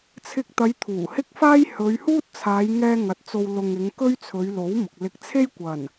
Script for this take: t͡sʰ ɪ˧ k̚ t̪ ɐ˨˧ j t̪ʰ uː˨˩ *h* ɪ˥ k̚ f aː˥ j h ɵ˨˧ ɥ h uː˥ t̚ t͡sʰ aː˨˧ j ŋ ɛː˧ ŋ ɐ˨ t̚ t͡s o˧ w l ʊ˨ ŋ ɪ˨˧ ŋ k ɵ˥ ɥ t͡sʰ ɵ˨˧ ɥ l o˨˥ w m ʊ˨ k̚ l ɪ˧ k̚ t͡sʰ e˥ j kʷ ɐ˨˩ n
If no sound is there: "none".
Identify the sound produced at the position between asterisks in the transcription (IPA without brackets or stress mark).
h